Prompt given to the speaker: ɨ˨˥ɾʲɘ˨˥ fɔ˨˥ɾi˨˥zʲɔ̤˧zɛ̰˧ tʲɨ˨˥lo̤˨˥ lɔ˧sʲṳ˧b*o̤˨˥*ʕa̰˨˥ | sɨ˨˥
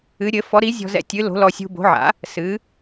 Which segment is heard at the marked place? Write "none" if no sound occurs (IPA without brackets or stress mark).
o̤˨˥